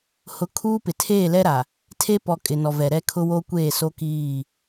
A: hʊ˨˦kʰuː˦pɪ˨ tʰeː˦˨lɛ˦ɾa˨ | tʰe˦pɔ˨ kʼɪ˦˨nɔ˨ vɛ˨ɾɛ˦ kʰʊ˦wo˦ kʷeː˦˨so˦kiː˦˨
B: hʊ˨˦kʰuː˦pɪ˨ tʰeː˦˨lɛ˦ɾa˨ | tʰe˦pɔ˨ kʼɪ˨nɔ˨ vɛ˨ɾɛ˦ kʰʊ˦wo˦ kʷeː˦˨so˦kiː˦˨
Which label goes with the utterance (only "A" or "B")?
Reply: B